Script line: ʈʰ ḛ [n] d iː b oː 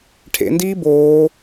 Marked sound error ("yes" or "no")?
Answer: no